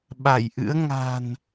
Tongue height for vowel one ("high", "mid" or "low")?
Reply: low